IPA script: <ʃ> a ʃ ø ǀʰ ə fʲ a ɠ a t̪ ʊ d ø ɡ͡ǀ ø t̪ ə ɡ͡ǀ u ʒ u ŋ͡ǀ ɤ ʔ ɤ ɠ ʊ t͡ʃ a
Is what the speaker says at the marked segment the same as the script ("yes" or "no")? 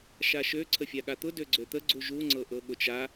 yes